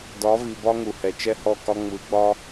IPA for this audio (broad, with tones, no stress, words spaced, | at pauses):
dɒ˨˦vi˨bɒ˦ ŋu˨hɛ˨ t͡ʃɛ˦hɔ˦˨kɒ˦ ŋ͡mɯ˨˦ɡ͡bɒ˦